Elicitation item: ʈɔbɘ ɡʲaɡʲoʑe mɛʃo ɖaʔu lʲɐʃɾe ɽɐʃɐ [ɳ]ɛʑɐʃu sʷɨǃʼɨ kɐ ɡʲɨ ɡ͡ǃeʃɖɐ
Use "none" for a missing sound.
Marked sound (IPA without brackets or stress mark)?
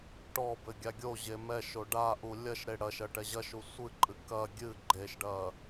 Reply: ʈ